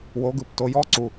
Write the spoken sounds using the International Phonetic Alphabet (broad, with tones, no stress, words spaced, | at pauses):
wo˧˥ɡɯ˩˧p to˧jɔ˥ ǀu˧